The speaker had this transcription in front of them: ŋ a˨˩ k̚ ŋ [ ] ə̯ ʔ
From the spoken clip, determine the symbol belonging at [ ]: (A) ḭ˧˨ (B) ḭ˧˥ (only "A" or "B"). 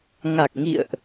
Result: A